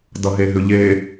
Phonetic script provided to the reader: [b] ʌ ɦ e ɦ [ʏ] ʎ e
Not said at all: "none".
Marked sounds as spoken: d, ʏ

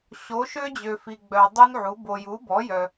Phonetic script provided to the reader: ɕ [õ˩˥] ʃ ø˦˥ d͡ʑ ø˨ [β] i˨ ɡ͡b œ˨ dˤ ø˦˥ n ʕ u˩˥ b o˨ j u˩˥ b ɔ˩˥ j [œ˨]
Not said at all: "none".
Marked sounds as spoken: o˩˥, f, œ˨

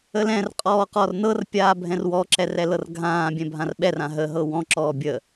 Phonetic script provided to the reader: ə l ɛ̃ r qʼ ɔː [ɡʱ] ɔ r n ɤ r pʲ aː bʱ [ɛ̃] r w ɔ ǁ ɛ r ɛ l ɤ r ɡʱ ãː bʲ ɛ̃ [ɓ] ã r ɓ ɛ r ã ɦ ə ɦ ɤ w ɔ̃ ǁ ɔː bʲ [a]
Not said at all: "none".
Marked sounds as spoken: q, ɛ̃, bʱ, ə

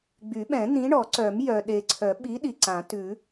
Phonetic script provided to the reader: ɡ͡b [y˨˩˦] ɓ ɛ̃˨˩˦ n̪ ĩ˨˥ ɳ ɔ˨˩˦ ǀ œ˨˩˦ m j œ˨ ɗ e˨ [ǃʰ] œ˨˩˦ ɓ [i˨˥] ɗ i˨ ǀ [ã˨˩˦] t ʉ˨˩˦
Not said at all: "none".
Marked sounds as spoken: y˨˩˦, ǀʰ, i˨˥, ã˨˩˦

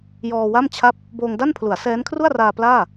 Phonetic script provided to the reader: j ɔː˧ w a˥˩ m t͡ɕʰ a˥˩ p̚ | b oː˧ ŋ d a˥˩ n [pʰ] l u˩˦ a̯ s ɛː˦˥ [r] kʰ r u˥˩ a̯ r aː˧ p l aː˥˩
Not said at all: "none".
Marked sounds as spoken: pʰ, n

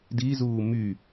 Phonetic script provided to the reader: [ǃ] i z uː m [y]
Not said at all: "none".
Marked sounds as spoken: d, y

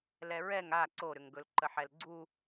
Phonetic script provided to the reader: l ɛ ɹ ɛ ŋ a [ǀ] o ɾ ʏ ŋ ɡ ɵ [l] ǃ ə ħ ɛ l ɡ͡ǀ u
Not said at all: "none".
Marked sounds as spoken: ǀ, l

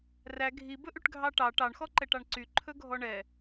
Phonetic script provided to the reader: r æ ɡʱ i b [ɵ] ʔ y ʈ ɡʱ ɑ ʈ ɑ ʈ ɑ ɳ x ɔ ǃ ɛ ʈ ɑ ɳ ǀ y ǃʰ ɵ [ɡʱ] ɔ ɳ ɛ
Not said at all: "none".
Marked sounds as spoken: ɵ, ɡʱ

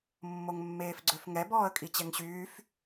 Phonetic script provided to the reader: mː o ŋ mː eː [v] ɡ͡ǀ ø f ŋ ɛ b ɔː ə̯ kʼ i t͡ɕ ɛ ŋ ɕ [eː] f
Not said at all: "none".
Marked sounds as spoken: f, yː

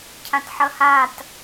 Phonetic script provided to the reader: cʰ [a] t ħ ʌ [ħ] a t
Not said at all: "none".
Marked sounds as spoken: ã, h

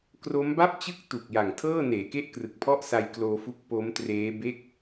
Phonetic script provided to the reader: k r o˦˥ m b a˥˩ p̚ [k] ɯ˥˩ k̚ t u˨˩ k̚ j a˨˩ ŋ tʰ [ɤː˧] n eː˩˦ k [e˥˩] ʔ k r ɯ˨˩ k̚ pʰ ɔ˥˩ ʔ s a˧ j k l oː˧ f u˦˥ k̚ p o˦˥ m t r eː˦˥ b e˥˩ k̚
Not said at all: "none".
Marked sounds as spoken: t͡ɕ, ɤː˥˩, e˥˩

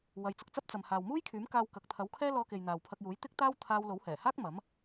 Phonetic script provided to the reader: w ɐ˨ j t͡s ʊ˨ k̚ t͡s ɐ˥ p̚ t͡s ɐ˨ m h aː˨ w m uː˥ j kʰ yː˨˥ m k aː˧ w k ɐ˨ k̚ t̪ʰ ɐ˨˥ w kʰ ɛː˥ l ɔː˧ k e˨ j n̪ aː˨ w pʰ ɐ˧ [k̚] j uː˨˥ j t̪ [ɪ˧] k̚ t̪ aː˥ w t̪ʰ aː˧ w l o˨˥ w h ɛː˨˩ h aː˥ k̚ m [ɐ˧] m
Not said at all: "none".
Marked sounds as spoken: k̚, ɪ˥, ɐ˨˥

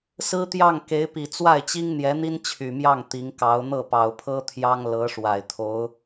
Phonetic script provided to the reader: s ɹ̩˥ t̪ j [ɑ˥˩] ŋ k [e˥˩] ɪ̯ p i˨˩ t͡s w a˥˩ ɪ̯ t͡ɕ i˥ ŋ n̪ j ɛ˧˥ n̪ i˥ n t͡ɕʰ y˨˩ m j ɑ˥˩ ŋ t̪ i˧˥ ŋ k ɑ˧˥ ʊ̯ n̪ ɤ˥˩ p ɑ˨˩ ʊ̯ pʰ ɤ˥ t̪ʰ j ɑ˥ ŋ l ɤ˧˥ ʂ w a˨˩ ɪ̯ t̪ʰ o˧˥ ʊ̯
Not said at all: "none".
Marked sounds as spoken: ɑ˥˩, e˧˥

